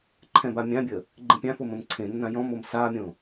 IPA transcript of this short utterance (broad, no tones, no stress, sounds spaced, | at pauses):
ǃʰ ɛ̃ b a mʲ ã bʲ ə | ɡ͡ǃ ẽ pʲ ã f o m ə̃ m ǀʰ ẽ nː ã j ɔ̃ m o m s a mʲ õ